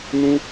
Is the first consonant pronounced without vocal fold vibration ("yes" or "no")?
no